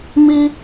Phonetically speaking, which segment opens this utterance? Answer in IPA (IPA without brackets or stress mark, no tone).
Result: m